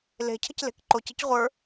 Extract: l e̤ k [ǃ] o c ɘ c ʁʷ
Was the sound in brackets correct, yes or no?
yes